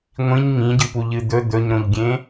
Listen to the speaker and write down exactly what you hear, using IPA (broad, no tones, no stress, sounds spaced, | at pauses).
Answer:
ŋʷ ĩ ɲ ŋ ĩ ɟ ɨ p u ʎ ɨ d̪ ɵ d̪ ɵ ɲ ɾ õ ʎ ɡʲ ẽ